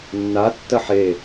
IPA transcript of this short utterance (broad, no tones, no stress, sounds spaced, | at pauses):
nː a tː ɐ ħ e